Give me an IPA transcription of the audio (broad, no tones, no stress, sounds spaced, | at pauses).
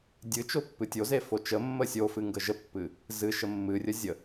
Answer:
dʲ ɨ t͡ʃ o pː ɨ tʲ o z e f o t͡ʃ ə mː ə sʲ o f ɨ ŋ ɡ ə ʒ ə pː ɨ | z ɨ ʃ ə mː ɨ rʲ ə zʲ ə